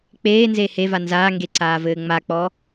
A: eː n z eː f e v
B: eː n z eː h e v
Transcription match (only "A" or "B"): B